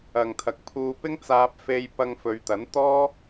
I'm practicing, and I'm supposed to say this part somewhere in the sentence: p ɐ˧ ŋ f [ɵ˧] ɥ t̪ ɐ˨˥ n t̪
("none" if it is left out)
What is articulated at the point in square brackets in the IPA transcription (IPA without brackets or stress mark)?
ɵ˨˧